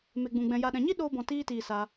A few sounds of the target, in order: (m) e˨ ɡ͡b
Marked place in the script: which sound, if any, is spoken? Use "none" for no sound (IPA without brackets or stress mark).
m